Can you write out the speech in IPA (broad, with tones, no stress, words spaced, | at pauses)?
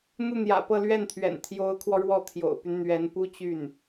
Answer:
n̪u˥˩n̪jä̰˨˩pɤ˥˧ lɥɛ˥˩nt̪ʰɥɛ̰˨˩n t̪ʰjo˧˥ʊ̯kʰwɔ˧ ɻwɔ˥˩t̪ʰjo̰˨˩ʊ̯py˦n n̪ɥɛ˧˥npu˥t͡ɕy˥˩n